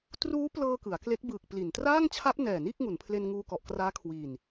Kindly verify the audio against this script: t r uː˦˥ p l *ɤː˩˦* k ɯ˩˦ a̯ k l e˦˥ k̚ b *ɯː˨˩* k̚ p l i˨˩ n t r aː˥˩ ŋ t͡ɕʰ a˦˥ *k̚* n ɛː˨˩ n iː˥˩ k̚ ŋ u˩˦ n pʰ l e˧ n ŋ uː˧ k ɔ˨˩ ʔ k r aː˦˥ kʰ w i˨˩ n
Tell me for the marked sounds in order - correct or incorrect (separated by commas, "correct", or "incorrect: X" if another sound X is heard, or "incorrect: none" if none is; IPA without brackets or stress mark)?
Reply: incorrect: ɤː˧, correct, incorrect: p̚